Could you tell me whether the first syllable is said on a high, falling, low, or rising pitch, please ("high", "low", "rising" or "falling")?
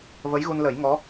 rising